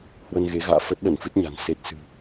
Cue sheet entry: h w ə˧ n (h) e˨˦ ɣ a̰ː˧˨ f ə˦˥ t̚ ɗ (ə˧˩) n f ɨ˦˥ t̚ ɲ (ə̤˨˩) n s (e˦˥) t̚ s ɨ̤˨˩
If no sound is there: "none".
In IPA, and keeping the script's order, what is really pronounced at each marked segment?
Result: ɣ, ə˧˩, a̤˨˩, e˦˥

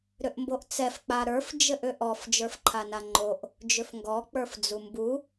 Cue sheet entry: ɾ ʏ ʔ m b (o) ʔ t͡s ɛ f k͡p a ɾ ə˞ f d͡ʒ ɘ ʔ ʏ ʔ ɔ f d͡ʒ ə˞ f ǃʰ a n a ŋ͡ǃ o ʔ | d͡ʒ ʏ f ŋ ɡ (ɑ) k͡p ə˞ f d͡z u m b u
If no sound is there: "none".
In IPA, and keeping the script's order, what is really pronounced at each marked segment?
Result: o, ɔ

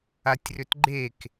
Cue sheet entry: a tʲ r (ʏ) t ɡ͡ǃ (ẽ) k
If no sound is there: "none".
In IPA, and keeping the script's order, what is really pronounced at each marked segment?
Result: ʏ, e

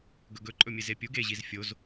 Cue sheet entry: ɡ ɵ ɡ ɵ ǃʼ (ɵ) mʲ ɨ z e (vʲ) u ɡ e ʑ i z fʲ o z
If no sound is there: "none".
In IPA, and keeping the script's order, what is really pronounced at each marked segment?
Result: ɵ, pʲ

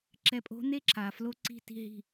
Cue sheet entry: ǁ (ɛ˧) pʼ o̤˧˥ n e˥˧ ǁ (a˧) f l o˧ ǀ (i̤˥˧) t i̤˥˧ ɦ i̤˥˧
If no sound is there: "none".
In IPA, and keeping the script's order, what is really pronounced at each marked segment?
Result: ɛ˧, a˧, i̤˥˧

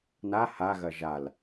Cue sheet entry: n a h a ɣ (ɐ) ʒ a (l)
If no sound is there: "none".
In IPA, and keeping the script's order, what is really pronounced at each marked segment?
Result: ɐ, l

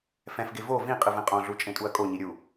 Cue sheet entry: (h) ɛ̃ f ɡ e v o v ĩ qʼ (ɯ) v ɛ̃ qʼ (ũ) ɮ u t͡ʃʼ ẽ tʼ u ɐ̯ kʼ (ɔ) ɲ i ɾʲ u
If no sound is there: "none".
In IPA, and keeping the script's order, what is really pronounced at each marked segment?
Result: f, ɯ, õ, o

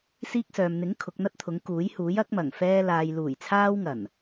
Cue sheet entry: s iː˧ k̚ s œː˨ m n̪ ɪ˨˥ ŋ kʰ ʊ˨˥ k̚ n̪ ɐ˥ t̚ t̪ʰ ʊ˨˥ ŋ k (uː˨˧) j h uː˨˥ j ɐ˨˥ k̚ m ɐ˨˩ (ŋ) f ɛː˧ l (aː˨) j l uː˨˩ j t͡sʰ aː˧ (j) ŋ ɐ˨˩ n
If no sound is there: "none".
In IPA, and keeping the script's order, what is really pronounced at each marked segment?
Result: uː˨˥, ŋ, aː˨, w

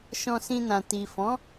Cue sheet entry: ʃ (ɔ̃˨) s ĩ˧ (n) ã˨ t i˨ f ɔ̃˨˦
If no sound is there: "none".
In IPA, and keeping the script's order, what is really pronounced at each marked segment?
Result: ɔ̃˧, n

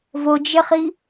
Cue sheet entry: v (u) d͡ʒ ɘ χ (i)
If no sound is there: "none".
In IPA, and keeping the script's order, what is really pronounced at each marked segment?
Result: o, i

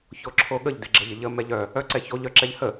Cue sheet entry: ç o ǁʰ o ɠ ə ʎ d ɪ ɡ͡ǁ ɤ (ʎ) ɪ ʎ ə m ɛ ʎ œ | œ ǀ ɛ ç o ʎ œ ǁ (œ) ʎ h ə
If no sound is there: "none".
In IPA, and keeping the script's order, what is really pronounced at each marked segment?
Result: ʎ, ɛ

